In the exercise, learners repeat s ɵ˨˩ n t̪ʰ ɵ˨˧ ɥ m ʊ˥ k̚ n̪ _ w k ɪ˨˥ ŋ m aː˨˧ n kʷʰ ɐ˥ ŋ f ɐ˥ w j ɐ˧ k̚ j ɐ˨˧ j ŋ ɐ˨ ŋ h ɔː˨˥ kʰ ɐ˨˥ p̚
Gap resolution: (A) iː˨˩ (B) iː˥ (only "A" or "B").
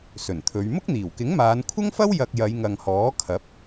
A